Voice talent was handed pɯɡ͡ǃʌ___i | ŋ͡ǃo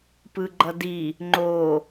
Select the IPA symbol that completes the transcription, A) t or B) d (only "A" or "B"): B